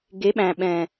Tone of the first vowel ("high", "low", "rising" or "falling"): rising